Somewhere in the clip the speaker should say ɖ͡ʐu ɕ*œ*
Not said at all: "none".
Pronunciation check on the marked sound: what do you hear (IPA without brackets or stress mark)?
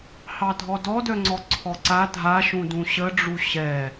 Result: ɛ